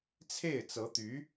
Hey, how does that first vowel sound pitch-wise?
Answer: falling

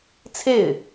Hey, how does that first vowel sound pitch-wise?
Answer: falling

